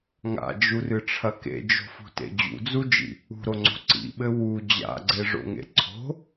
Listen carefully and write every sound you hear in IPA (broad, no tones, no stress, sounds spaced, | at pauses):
ŋ a̰ d͡ʒ u r ɨ ʈ͡ʂʰ ɐ k ḛ d͡ʒ o̤ f ṳ t ḛ d͡ʑ ṵ d͡z u d͡ʒ ḭ | ṳ ɾ o ŋ͡ǀ o̤ ǀ ḭ ɓ ɘ w u d͡ʑ a̰ ɡ͡ǀ e ʐ o̰ ŋ ḛ ǀʰ o̤